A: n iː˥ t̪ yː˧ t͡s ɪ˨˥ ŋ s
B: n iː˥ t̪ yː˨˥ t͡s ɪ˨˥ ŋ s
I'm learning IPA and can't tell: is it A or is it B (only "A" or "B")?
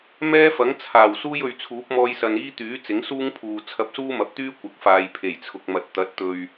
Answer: B